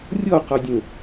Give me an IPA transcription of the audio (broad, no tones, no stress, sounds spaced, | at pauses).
rʲ ɔ q ɔ dʲ ə̃